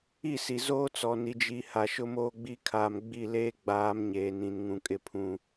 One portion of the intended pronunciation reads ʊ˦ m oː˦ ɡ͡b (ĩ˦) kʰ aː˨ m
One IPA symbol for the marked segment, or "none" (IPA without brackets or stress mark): i˦